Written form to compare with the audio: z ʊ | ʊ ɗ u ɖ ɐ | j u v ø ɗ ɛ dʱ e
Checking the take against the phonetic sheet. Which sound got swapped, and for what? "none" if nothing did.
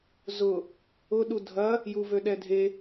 ɖ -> dʱ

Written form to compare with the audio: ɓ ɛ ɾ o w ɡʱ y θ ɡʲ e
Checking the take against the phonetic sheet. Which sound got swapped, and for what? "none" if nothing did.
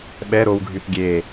none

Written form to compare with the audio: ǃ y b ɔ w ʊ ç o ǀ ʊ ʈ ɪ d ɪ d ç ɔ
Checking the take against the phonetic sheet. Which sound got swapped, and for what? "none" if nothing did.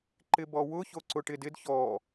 y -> ɪ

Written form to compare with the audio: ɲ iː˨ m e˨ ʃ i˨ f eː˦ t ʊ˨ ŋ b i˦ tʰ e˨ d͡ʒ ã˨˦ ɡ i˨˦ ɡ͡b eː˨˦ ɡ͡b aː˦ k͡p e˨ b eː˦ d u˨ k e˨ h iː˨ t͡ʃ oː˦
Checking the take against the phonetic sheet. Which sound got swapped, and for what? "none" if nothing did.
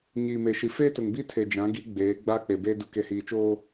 none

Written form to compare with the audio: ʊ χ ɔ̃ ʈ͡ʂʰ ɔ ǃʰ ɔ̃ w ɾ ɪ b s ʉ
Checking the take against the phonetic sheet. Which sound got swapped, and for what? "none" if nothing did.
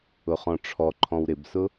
ʉ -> ʊ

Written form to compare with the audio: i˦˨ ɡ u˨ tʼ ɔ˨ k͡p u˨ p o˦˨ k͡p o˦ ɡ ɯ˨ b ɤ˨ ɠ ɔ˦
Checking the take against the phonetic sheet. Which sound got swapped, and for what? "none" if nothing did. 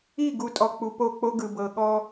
none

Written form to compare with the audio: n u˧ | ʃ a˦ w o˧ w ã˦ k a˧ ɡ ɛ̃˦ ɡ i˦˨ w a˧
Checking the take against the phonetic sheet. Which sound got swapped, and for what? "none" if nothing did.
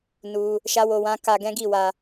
none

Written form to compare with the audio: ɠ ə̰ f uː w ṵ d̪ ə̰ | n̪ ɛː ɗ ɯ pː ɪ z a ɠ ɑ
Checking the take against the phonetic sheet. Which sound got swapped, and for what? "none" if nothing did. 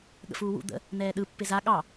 none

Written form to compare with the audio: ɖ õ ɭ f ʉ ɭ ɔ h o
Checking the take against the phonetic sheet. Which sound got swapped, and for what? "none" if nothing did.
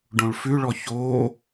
h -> ç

